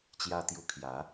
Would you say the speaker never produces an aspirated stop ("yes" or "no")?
no